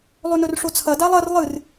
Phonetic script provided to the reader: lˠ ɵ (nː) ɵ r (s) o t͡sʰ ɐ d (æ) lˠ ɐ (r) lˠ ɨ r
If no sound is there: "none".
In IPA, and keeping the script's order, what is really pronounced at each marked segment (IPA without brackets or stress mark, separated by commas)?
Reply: n, ʂ, a, r